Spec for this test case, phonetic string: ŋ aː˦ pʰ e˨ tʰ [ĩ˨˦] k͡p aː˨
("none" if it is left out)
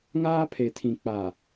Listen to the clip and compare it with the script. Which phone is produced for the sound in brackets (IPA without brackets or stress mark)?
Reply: ĩ˨